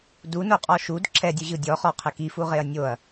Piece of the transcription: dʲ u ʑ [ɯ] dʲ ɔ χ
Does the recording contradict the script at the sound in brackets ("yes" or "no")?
no